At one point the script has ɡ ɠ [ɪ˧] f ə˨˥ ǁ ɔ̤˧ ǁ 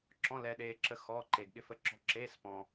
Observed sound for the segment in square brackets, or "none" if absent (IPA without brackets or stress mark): ɪ˧